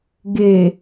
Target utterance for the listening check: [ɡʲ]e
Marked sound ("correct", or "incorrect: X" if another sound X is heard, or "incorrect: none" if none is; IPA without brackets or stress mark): incorrect: ɡ